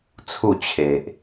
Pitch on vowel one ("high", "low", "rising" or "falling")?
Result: falling